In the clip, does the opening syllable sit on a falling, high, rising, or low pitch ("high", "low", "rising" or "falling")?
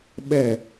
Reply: low